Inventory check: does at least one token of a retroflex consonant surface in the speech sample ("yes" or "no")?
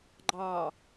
no